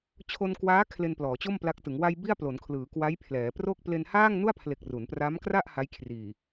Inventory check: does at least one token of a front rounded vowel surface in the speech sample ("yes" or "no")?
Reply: no